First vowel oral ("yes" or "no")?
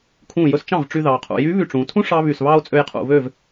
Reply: no